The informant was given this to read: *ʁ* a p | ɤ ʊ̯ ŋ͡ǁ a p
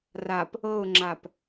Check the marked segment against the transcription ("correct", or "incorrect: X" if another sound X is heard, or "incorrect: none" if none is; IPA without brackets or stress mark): incorrect: r